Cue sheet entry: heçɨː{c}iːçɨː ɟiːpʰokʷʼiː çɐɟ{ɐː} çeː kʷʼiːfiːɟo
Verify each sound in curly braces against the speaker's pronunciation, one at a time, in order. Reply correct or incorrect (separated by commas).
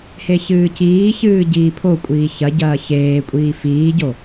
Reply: correct, correct